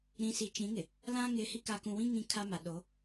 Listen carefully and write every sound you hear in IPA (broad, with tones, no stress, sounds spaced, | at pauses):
ɾ ĩ˨ s i˨ t͡ʃ ĩ˨˦ ŋ ɪ˨ | l ã˦ ŋ ɪ˨˦ h i˦ k a˨ k ũ˨ w ĩ˦ ŋ ĩ˦ kʰ a˦ m a˨ ɗ o˨˦